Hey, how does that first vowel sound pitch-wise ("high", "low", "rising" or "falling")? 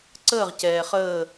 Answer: falling